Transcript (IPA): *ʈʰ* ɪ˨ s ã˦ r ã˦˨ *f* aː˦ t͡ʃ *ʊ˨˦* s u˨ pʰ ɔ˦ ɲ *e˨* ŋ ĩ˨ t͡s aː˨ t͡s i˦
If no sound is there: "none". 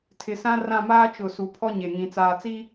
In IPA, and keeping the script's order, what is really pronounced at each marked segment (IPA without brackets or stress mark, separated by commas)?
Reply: tʰ, m, ʊ˨, e˨